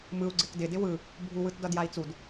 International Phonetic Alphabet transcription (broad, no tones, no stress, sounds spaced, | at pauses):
m ɯ u̯ ɡ͡ǀ ɪ k d ɪ d ɪ w ɯ | bʱ u w ɯ t d ʌ d j a i̯ t͡s u d